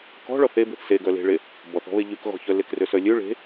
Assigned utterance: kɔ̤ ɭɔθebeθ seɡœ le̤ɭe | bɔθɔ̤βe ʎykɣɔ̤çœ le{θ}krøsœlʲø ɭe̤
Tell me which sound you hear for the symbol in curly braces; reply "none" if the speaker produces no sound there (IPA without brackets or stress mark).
none